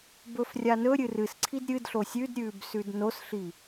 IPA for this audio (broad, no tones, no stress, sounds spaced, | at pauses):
b ɵ f rʲ a n ɵ ɾʲ ɨ r ɨ s ǀʰ i d ɾʲ ɨ d ɬ o sʲ ʉ d ɾʲ ʉː b s ʉ d n o s ɬ i